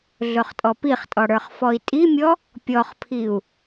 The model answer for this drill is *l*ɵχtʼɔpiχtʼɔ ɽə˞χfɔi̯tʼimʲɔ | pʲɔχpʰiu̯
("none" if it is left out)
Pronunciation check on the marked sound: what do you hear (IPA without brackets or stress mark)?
ɮ